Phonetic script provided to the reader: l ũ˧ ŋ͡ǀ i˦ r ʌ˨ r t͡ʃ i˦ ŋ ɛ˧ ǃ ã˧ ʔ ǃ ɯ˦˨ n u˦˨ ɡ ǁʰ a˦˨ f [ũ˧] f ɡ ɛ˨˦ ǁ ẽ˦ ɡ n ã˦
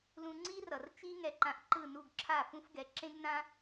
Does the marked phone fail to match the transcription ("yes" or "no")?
yes